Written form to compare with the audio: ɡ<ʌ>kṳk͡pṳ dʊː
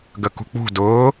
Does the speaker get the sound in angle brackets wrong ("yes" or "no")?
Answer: yes